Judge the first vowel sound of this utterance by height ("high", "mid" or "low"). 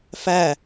low